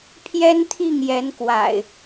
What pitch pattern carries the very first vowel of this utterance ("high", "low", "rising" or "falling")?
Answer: high